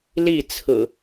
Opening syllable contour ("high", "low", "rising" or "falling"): falling